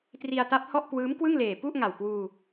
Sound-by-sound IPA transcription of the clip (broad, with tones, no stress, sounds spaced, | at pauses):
t r i˧ a̯ t a˦˥ p̚ h ɔ˥˩ ʔ k w ɯː˦˥ m k w ɯ˥˩ ŋ l eː˨˩ p u˥˩ ʔ ŋ a˨˩ w k w uː˧